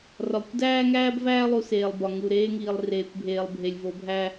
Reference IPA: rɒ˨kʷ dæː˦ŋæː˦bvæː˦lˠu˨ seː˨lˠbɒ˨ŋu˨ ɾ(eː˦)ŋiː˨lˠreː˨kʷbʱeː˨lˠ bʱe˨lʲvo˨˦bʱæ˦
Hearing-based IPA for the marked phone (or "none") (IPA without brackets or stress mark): eː˦